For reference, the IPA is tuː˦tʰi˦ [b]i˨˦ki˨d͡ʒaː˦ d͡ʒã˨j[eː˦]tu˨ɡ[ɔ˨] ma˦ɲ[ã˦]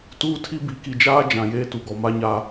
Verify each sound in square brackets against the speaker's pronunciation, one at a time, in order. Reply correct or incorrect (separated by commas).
correct, correct, correct, incorrect